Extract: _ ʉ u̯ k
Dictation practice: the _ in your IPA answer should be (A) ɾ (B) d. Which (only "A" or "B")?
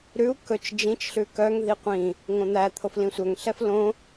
A